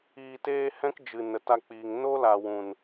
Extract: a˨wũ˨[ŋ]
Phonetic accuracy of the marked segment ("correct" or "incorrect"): incorrect